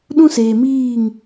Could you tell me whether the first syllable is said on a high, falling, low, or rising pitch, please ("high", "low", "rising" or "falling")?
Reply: high